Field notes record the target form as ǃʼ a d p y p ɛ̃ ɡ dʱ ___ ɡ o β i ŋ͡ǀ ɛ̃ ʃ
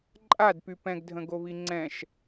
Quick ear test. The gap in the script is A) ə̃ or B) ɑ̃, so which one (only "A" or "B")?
A